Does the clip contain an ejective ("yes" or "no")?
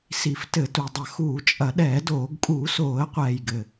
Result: yes